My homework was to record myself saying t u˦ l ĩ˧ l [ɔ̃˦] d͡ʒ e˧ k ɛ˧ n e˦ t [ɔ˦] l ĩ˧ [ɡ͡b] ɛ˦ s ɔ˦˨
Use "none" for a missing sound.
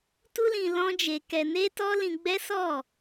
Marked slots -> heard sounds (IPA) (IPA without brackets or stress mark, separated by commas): ɔ̃˦, ɔ˦, ɡ͡b